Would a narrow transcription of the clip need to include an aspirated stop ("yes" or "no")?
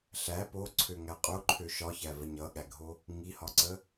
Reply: yes